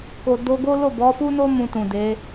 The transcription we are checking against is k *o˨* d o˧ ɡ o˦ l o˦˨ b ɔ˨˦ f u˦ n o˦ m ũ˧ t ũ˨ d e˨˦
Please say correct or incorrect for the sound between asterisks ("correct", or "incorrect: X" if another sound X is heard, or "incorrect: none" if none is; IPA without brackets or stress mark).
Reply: correct